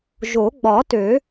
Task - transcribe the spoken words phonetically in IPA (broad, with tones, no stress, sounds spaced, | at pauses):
ʒ o˨˩˦ ɡ͡b ɒ˨˩˦ t ø˨˩˦